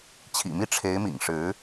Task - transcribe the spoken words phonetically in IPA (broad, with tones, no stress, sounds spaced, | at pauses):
t͡ɕʰ ḭ˨˩ m i˥˩ ʈ͡ʂʰ e˧˥ ɪ̯ m ḭ˨˩ ŋ ʂ ɻ̩˧˥